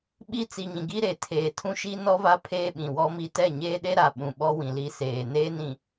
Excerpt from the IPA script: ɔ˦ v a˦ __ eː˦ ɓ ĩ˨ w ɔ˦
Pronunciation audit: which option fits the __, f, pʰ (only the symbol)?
pʰ